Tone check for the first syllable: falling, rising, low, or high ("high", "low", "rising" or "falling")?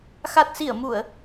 low